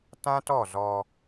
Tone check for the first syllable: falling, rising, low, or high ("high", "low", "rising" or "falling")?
high